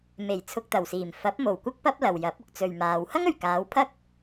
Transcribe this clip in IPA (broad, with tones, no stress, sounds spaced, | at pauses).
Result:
m e˨˩ j t͡sʰ ʊ˧ k̚ t̪ ɐ˨˩ w s iː˨˩ m f ɐ˨˥ p̚ m o˨˩ w kʷ ɐ˥ k̚ p ɐ˥ p̚ l ɐ˨ w j ɐ˨˥ p̚ ʊ˧ k̚ t͡s ɵ˨ ɥ m aː˨ w h ɐ˥ ŋ ɵ˨˩ ɥ k aː˨˧ w pʰ ɐ˥ k̚